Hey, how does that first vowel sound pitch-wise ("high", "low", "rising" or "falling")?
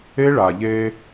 high